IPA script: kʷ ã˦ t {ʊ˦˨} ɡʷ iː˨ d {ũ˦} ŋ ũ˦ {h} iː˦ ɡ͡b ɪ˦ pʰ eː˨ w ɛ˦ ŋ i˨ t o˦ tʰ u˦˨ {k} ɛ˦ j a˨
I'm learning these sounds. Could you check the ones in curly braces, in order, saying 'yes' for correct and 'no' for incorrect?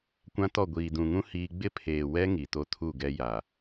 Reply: no, no, yes, no

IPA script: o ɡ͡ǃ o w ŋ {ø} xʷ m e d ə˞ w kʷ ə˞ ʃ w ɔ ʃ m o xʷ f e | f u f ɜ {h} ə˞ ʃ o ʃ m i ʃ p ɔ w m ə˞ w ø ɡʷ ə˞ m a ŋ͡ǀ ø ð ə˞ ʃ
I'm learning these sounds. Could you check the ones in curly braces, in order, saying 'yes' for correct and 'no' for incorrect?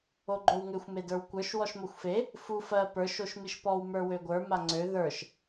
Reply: yes, no

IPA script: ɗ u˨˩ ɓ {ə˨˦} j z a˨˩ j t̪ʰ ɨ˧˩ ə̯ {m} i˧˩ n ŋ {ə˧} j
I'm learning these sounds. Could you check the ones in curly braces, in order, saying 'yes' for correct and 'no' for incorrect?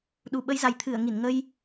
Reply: yes, no, yes

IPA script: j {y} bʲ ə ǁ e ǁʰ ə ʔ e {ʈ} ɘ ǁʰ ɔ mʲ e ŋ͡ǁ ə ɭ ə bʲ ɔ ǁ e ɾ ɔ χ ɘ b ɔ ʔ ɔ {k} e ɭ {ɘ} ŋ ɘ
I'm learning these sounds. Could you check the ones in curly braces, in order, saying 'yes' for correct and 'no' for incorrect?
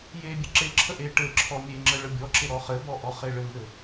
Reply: no, yes, no, yes

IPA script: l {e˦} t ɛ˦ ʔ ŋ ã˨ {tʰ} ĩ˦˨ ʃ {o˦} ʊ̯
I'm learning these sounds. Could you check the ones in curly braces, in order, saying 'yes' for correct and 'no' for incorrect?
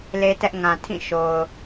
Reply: yes, yes, no

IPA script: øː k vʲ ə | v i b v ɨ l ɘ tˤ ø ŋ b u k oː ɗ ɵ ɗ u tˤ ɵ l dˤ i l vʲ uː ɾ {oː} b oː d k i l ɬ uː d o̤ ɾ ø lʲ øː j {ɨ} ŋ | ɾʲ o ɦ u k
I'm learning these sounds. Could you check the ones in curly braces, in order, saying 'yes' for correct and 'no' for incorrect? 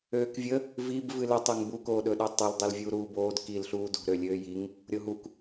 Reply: no, no

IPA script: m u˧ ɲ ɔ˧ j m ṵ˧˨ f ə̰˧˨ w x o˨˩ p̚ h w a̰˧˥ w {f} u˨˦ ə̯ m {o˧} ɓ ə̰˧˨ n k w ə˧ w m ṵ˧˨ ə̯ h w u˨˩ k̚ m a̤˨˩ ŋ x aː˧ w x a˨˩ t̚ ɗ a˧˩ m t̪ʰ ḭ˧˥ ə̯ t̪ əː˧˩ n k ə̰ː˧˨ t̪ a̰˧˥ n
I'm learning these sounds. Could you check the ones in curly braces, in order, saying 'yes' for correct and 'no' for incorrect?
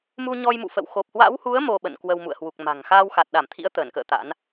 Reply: no, yes

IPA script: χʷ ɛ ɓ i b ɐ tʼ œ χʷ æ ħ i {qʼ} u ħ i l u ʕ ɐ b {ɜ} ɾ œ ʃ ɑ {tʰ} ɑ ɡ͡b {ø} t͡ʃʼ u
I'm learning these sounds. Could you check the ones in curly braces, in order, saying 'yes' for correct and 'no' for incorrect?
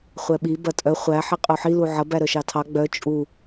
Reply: yes, no, yes, no

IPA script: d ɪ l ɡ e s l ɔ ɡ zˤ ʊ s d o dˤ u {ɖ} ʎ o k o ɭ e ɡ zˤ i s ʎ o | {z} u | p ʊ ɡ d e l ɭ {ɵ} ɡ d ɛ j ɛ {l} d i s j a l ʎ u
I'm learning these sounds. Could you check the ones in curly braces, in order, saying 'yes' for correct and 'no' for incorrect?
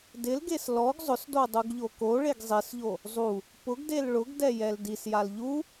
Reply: no, no, no, yes

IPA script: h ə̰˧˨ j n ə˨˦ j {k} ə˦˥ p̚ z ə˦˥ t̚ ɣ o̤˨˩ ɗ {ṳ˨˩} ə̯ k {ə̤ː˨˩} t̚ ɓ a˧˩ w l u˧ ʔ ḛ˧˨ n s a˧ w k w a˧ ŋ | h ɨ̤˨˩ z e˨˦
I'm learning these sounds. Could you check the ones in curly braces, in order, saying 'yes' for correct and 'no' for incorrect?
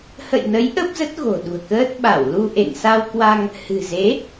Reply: no, yes, no

